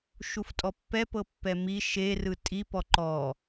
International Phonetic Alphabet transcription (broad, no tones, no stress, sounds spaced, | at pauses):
ʃ u f tʼ ɔ pː ɛ p ɤ pː ɛ m i ʃ e r ɯ tʼ i p ɔ ǃ ɔ